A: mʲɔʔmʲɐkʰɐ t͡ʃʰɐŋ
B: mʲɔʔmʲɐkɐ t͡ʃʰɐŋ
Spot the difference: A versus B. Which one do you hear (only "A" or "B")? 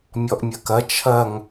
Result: B